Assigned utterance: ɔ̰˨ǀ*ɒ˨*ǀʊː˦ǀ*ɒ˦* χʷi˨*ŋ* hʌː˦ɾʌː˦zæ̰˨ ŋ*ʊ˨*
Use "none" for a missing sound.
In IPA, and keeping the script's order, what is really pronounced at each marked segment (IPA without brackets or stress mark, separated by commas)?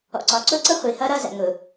ɒ˨, ʌ˦, none, ʊ˨